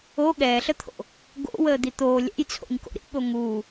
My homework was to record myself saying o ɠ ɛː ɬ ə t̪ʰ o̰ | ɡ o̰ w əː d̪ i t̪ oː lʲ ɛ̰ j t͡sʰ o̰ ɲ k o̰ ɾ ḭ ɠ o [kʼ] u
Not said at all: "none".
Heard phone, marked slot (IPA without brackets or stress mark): ŋ